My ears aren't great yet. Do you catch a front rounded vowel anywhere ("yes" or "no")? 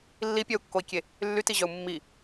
yes